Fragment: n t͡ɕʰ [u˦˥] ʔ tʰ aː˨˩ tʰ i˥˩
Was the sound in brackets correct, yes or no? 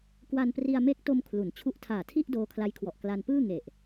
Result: yes